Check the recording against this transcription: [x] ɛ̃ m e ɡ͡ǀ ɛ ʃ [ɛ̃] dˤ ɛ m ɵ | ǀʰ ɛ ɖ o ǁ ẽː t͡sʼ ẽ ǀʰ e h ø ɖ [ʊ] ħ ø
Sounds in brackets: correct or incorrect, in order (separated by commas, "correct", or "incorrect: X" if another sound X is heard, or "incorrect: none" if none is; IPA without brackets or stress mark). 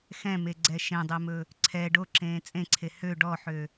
correct, incorrect: ẽ, incorrect: ɔ